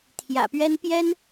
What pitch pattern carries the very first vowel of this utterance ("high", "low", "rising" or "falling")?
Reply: low